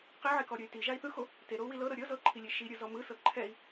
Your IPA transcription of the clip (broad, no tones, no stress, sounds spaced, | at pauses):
q i ʕ e k ɔ ɾʲ ɤ y̯ t i ʒ a i̯ θ ɯ x o | t e ɾ o u̯ w i l ɤ ɾ ɤ ɾʲ ɤ z ɤ ǃʰ i lʲ e ʃ i ɾʲ ɯ z ɔ m ɯ s ɤ ǃʰ ɛ i̯